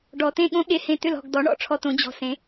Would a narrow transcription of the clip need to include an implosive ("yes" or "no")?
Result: yes